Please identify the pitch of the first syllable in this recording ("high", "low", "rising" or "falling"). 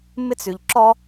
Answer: high